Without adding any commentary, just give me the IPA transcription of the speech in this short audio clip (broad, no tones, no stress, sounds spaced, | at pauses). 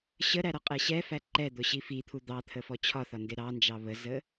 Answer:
ɕ ə ɾ æ ɾ ɒ qʼ ɛ ɕ ɛ f æ ǃ ɛ d̪ ʊ ɕ i f i t̪ʰ u d̪ ɑ t̪ʰ ə f ɔ t͡ɕʰ ɒ θ ɒ n d ɪ ɾ ɑ n d͡ʒ ɑ β ə z ə